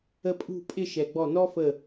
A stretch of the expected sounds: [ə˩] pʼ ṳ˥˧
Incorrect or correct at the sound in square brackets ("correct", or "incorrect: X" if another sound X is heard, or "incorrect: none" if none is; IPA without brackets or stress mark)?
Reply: incorrect: ə˧